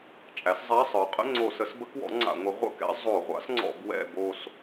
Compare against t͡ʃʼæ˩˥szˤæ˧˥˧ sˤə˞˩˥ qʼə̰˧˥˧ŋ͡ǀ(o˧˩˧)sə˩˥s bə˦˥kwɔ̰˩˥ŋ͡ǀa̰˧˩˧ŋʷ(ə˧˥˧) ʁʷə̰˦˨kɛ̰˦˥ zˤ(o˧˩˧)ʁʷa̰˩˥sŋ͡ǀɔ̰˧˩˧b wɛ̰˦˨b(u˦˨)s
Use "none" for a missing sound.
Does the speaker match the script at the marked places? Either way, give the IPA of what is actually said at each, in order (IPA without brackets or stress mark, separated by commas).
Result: o˧˩˧, ə˩˥, o˧˩˧, o˦˨